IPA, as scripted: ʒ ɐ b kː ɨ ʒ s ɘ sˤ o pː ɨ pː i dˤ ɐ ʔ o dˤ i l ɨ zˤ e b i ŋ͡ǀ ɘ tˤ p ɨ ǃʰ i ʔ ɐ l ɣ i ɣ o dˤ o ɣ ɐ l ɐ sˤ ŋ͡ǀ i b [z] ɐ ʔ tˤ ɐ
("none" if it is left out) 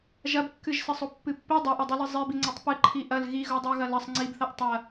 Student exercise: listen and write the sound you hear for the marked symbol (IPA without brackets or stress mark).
θ